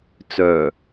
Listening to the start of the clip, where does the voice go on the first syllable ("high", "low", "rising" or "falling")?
low